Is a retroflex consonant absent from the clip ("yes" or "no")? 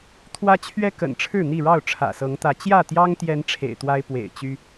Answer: no